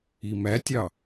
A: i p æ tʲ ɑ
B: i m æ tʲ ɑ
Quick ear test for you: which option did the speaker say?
B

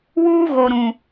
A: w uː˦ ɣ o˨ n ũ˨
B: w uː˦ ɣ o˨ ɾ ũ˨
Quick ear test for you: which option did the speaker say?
B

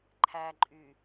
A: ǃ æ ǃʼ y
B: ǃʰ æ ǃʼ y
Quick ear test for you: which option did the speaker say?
B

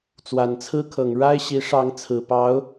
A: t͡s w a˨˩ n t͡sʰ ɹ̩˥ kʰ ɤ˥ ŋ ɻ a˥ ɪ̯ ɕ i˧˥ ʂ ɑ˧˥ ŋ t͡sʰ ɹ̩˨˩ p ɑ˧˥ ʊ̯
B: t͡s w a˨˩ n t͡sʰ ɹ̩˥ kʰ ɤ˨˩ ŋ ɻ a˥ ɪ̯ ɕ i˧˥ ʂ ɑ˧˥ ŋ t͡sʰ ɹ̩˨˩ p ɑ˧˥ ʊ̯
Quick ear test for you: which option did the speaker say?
B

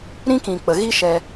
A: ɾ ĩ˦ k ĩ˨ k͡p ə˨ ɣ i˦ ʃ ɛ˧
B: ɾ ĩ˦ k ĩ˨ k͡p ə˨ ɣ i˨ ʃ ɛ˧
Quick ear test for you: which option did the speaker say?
A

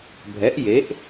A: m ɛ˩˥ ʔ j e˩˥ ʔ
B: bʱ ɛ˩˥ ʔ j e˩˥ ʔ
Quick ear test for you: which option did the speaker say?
B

